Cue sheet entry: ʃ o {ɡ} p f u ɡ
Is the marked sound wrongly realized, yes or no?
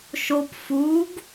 yes